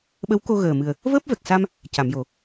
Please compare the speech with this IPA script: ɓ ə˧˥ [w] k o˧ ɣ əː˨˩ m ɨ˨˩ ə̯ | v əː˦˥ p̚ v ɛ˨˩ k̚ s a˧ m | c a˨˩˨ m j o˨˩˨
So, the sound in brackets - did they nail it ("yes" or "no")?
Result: yes